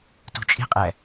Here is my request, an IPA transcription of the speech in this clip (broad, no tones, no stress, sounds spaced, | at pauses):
t ṳ t͡ʃʼ i̤ qʼ æ